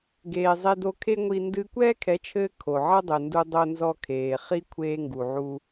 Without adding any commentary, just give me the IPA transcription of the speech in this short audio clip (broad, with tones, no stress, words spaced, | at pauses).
ɡeː˨ zˤe˧do˧kʰe˦ ŋʷi˧ndɨ˦ kʷɛː˦kʰɛ˨˦t͡ʃʰɘː˧ kʰo˨ ʕɐ˦dˤɨ˨ndu˧ dˤo˧nzɔ˧kʰeː˨ χi˦kʷʰeː˧ŋɡu˨ʕu˧